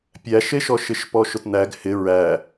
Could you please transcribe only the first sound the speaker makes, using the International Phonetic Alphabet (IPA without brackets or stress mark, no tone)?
pʲ